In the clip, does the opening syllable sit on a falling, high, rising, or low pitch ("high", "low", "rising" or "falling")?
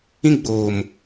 high